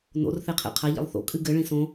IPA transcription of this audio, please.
n o̰ r θ e qʰ ḛ qʰ a ʎ ḛ lˠ θ o̰ kʼ ɨ ɡ ɘ ɭ ĩ s õ

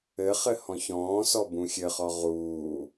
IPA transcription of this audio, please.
ɘ χ ɘ h ɔ̃ ç ɔ̃ː s ɔ b ũ xʲ ɘ χ ɔ ʁ uː

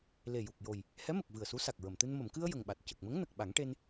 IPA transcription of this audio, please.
l e˨˩ j u˨˩ k̚ j o˨˩ j | h ɛ˧˥ m ə˨˩ k̚ v ɨ˨˩ ə̯ s u˧˥ s a˨˩ k̚ ɹ ə˨˩˨ m t̪ ɨ˧ n m ə˨˩˨ m k ɨ˧ ə̯ j ə˨˩ ŋ ɓ a˨˩ t̚ c ə˨˩ k̚ m ə˧˥ ŋ n ə˨˩ k̚ ɓ a˨˩˦ ŋ ʈ e˧ n

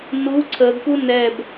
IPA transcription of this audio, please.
n u ǀʰ ə ɡ k u n ɛ b

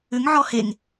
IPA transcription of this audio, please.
ʏ ŋ ʕ ɔ h e ŋ

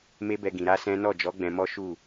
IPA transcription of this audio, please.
m e˦ b ɛ˧ ɡ ĩ˨ ɾ a˧ s ɛ̃˦ n ɔ˦˨ d͡ʒ ɔ˨˦ ɡ͡b ɛ̃˧ m ɔ˦ ʃ u˦˨

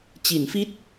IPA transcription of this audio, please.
t͡ɕ i˩˦ n f i˦˥ t̚

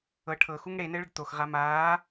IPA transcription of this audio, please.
ɤ ʈʰ ɤ x u ŋ ɽ e n ɘ ɭ ə ɖ t̪ o x ʁ a m aː

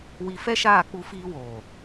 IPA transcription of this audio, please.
w i˧ f ɛ˦ ʃ aː˦˨ k͡p u˧ f iː˧ w oː˨

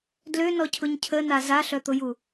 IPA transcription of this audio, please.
d l ø n ɔ cʰ ʊ ɲ cʰ ə n a z a ɬ œ t̪ ʊ j u

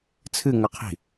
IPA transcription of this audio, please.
t͡sʰ ɨ ŋ ɐ qʰ i̤

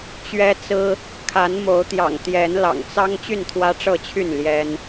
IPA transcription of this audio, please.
t͡ɕ ɥ ɛ˦ t͡s ɹ̩˦ | kʰ a˨˦ n m o˨˦ ʊ̯ t̪ j ɑ̰˨˩ ŋ t̪ j ɛ˨˦ n l ɑ̰˨˩ ŋ t͡s ɑ˦ ŋ t͡ɕ y˥˨ n t̪ʰ w ä˦ ʈ͡ʂ ɤ˥˨ t͡ɕʰ y˥˨ n l j ɛ˦ n

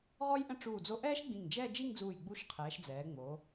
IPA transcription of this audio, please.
ʁ ɔ˥ j ʔ ə̃˥ ʈ͡ʂ uː˧˩ d͡z o˧ ʔ ɛː˥ ʃ ɡ͡b ĩ˧˩ ŋ d͡ʒ ɛ˥˧ d͡ʒ i˥˧ ŋ d͡z uː˧˩ j ɡ͡b u˧ ʃ qʰ ɛː˩˧ ʃ d͡z ɛː˩˧ ŋ͡m o˩˧

